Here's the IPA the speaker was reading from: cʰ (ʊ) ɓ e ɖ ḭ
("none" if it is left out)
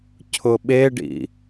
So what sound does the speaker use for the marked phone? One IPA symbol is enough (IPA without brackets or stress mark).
ʊ